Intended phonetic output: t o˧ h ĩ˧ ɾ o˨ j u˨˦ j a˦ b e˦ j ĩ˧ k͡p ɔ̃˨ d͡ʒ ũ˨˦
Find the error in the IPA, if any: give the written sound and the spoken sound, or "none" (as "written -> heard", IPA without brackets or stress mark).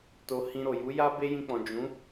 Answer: none